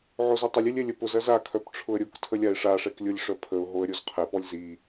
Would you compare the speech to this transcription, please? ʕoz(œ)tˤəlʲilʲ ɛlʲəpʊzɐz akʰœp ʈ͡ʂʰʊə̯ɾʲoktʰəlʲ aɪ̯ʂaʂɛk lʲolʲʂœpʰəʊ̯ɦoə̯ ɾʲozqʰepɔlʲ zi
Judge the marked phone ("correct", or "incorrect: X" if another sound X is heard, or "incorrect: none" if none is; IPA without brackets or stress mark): correct